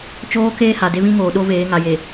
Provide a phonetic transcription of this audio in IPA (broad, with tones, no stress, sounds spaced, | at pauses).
t͡ʃ oː˦ k eː˦ h a˨ d e˦ β ĩ˦ ŋ oː˨ ɗ o˦ v eː˨˦ ŋ a˨ j e˨